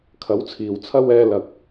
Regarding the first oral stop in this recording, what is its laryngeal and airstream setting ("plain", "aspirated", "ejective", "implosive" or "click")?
aspirated